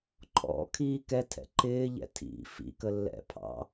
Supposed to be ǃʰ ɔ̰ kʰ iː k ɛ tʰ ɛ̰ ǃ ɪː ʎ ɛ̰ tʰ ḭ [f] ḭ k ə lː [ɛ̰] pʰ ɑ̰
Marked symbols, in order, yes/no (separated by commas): yes, yes